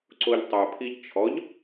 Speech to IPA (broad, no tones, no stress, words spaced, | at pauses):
ǀoʎtˤœpʰiʎ t͡ʃʰɔʎ